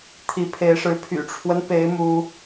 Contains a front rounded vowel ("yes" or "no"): yes